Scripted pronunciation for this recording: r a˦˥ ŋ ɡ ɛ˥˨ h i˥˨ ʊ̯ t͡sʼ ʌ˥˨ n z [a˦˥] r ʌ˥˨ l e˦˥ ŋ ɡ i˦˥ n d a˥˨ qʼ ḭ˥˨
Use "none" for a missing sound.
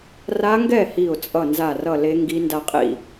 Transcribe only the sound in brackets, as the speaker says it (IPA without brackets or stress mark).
a˥˨